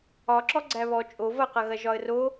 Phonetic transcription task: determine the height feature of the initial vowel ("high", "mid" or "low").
low